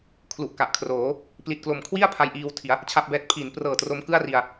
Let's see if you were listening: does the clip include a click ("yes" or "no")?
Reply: no